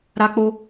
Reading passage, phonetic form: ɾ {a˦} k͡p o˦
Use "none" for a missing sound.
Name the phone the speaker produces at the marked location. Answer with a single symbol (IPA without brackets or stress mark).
a˦